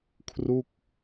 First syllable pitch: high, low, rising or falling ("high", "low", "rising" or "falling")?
falling